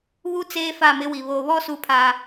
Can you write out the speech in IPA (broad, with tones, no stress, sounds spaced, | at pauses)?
β u˦ t͡s eː˦ f a˦˨ m ɪ˦ w i˨ β o˨ β ɔ˦ s u˦ pʰ a˦